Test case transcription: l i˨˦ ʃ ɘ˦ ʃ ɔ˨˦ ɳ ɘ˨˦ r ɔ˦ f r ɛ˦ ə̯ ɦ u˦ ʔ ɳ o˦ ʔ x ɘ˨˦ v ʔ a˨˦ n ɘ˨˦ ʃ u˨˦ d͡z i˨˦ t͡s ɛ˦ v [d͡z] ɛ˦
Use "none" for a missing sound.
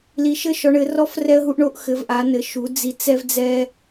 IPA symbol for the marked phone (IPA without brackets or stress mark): d͡z